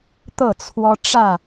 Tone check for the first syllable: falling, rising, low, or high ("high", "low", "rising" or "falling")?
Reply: falling